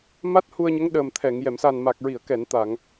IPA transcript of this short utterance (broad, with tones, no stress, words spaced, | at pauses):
ma˦˥t̚hu˧ə̯ɲə˧˥ŋ ɗəː˨˩mt̪ʰɛ˨˩˨ŋ jɛ˨˩˨msa˨˩n ma˨˩k̚ɹi˨˩˨ə̯kɛ˨˩˨n t̪a˨˩˨ŋ